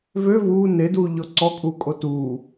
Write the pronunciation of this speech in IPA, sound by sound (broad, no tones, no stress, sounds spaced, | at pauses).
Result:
v ø v uː n e d uː ʎ ɔ ǀ ɔ kʼ uː kʼ o t uː